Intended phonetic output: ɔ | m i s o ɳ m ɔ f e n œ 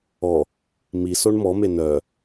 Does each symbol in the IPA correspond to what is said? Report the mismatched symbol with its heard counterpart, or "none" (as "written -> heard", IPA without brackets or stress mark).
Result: f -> m